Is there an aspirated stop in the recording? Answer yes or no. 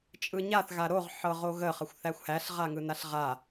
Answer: no